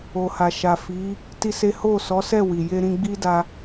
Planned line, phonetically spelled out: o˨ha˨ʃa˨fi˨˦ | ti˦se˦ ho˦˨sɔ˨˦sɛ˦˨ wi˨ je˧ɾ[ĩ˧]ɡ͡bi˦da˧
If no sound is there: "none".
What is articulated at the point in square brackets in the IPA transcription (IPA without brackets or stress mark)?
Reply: ĩ˧